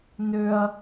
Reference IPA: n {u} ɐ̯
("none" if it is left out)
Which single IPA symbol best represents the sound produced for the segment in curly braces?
ʏ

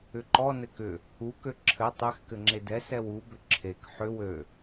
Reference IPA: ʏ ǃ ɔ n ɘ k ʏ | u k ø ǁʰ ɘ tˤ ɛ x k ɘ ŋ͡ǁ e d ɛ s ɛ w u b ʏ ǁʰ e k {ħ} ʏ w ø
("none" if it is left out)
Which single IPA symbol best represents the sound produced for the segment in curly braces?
ħ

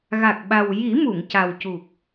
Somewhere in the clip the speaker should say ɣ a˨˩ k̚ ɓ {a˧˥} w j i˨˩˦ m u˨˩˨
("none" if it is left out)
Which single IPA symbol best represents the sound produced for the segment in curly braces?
a˨˩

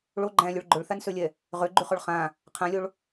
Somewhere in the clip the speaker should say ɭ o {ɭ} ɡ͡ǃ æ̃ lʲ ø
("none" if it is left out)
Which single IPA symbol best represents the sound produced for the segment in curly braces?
none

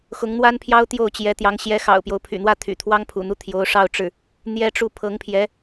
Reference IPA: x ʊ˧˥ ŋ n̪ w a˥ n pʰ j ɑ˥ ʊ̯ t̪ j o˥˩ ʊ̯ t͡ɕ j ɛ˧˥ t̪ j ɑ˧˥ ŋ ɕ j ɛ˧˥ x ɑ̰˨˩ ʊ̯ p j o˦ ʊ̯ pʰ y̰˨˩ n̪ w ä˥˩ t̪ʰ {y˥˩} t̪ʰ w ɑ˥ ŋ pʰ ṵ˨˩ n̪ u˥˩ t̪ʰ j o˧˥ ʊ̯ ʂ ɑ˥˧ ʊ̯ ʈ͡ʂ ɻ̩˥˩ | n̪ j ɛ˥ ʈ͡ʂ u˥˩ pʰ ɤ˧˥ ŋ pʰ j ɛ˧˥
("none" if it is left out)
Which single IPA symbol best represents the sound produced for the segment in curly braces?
y̰˨˩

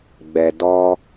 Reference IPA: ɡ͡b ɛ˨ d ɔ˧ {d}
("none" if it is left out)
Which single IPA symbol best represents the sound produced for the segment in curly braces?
none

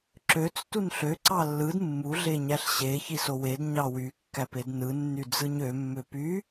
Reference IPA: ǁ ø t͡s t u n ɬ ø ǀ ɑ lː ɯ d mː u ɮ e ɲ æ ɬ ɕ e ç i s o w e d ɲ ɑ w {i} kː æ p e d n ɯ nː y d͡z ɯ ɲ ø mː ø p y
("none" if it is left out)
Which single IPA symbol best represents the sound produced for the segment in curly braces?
y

